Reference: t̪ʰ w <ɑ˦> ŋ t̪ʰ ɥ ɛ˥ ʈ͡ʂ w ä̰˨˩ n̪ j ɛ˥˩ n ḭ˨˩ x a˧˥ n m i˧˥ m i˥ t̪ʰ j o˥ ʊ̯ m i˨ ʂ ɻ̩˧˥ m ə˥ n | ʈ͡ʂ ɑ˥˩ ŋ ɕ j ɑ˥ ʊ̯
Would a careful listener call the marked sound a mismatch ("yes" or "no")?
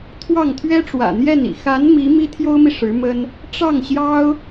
yes